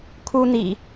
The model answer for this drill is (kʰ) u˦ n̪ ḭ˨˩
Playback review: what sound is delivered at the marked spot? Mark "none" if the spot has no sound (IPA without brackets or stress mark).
kʰ